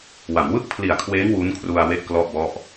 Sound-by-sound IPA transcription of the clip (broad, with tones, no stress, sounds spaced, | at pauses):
w a˩˦ m w ɯ˥˩ k̚ pʰ l i˨˩ a̯ kʰ w eː˦˥ ŋ w u˦˥ n kʰ r u˧ a̯ w e˥˩ ʔ k l ɔ˥˩ ʔ b ɔ˥˩ ʔ